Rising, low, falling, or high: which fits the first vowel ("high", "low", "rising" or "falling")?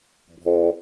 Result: low